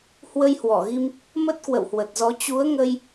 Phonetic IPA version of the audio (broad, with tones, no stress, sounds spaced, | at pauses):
h w ə˧ j h w ɔ˧˩ ɣ i˧ m | m ə˦˥ t̚ k w ə̰˧˨ w h w ə˨˩ t̚ z ɔ˨˦ t͡ɕ u˨˦ ə̯ ŋ ə˧ j